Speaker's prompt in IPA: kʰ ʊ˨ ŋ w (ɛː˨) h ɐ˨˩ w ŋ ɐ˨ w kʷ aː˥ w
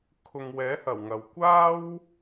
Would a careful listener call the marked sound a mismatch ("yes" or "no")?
yes